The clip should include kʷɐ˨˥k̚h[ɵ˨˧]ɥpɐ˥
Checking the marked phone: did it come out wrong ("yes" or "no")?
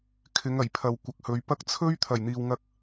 no